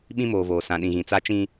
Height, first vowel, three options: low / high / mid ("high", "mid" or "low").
high